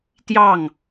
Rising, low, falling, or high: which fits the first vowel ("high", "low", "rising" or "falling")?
falling